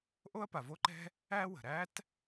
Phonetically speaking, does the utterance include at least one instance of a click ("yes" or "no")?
yes